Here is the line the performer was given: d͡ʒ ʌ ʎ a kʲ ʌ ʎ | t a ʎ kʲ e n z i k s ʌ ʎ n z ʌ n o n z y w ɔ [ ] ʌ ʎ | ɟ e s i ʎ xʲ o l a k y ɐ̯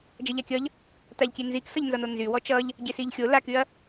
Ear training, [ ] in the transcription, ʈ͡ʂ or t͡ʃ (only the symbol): t͡ʃ